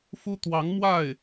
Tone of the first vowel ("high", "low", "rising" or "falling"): high